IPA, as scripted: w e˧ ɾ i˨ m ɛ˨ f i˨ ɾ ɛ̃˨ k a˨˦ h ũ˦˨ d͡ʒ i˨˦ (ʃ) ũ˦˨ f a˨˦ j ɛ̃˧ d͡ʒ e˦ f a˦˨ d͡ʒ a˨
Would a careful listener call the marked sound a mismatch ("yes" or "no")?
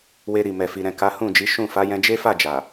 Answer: no